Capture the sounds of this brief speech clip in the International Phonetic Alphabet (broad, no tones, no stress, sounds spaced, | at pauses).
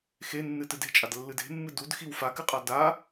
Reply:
x e nː ɨ t ɨ d e̤ t͡ʃʼ a d lː ɨ d e̤ mː ɨ d u d x i w f a k ɨ qʼ a d a